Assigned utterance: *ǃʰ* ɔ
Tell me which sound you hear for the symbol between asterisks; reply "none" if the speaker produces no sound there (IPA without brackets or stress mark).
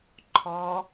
ǃʰ